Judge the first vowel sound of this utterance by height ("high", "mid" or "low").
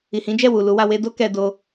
high